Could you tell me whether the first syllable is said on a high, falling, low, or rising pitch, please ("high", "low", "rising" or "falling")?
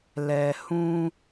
low